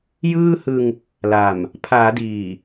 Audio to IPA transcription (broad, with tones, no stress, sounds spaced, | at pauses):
j ɯː˥˩ h ɯ˧ ŋ | l a˨˩ m | pʰ aː˩˦ d iː˨˩